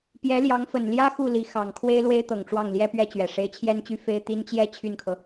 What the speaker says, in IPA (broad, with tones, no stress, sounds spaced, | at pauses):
p j ɛ˧˥ l j ɑ˧˥ ŋ f ə˨˩ n l j ä˥ x u˥˩ l i˧˥ x ɑ˨˩ ŋ kʰ w e˥ ɪ̯ l w e˥ ɪ̯ t̪ ɤ˨˩ ŋ ʈ͡ʂ w ɑ˥˩ ŋ l j ɛ˥ p ɥ ɛ˥ t͡ɕ ɥ ɛ˨˩ ʂ e˧˥ ɪ̯ t͡ɕʰ j ɛ˥ n t͡ɕ y˥ f e˥ ɪ̯ t̪ i˥ n t͡ɕ j ɛ˥˧ t͡ɕʰ y˥˩ n kʰ ɤ˩